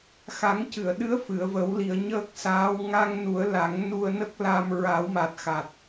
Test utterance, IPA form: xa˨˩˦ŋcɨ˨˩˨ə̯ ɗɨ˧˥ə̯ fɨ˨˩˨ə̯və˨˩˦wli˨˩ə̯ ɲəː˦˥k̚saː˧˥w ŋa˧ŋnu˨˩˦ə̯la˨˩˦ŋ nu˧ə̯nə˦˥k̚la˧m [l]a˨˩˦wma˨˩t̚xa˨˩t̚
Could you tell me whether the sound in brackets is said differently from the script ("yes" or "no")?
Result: yes